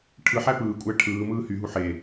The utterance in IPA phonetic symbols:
ʈʰɯħæ pɯːkʷʼæ ʈʰɯːmɯː hyɦu ħe

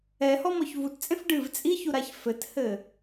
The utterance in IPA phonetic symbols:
ɛhɔmɔç vutt͡sʼẽf ɖɨv t͡sʼiçuɾaç fɘthɘ

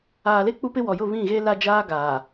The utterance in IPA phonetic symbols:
aː˨le˦ k͡pu˦pɪ˦ wɔ˨jʊ˦˨ βĩ˦˨ɣe˦ la˦d͡ʒaː˦ ɡaː˨

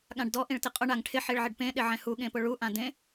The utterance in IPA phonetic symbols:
ɠãɖdɔ ʔĩɭtɪqʼʊ ɳaŋʈʰɪ ħiɭʕɪɖpẽ ɗɪʕɛ̃hu ɠẽpʊɭu ʔãdẽ

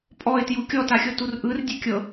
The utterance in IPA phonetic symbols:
pʼɔɪ̯tju kʲɔtaxʲɤtur ʔɯrdʲe kʲɤ

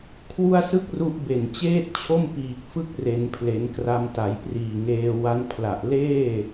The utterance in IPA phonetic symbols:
kʰwu˥˩a̯sɯ˥˩k̚ru˦˥ʔbe˨˩n t͡ɕeː˥˩t̚t͡ɕʰo˥˩m piː˨˩k̚fɯ˥˩k̚re˩˦npʰle˩˦n kra˧mta˩˦jpriː˨˩ŋeː˧ wa˦˥n pʰla˨˩ʔ leː˥˩

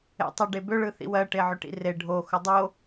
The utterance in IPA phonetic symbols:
ḛtˤʏ ɖebʏ ɭɯθḭwɜ ʈeʕʏʈḭre ɖʱo xʊdˤo

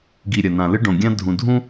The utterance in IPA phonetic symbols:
ɡi˨ ɾʲɐ˨nã˨lɨ˦ ɖõ˨ɡʲã˦ dʱũ˨dʱũ˦

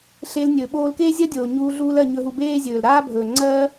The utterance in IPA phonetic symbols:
ɬe˧lnʲɵː˨ ɓoː˧lkeː˦zʲɜ˦dʲoː˨ ɲuː˧ ɮuː˦lɜ˧ ɲɵ˧ɦu˧ beː˦zʲɵː˨l ɾaː˦bʱɵː˨ŋ͡ǀɜː˦

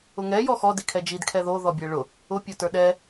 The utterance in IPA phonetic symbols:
ʊŋɛ jɔxɔ dikʰɛd͡ʒid kʰɛðo ðɔbʲɛɭʊ | ʊ pʲotə˞ɗɛ

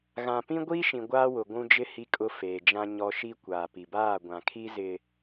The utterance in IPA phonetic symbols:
ɣã˨ pĩ˦ɡʷiː˦ʃĩ˨ ɡʷaː˦wʊ˨ɡʷũ˦d͡ʒɪ˦ hi˦kʼʊ˦ feː˨d͡ʒã˦ɲɔ˦ ʃi˦kʷaː˨pi˨ baː˦˨ɡʷã˨ kʰi˦zɪ˨

